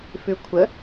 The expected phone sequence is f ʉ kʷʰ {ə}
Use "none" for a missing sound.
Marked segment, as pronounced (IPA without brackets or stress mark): ə